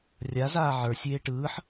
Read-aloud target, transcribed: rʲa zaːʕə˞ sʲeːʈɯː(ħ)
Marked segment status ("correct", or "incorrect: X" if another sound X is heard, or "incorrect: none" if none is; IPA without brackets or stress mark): correct